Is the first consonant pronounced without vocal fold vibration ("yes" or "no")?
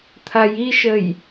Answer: yes